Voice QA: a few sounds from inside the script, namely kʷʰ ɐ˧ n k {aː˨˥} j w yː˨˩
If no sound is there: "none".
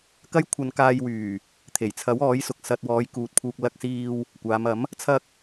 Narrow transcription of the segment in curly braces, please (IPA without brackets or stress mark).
aː˧